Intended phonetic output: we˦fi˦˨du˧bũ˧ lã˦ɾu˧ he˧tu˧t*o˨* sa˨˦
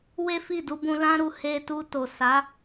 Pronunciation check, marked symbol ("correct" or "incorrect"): correct